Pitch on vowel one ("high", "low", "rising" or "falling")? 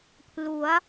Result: rising